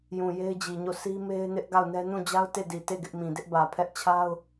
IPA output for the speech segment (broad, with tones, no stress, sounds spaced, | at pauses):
j ũ˨ j e˦ ɪ̯ d͡ʑ i˨ ɲ o˦˨ s i˦ m e˦ ɪ̯ n ɪ˦ ʔ ɡ a˦˨ ʊ̯ n ɛ˦ n ũ˦˨ d͡ʑ a˦ ʊ̯ t e˦˨ d i˨ t e˦˨ ɡ ɪ˦ ʔ m ĩ˨ d ɪ˦ ʔ b ä˨ pʰ ɛ˦ ʔ t͡ɕʰ a˦ ʊ̯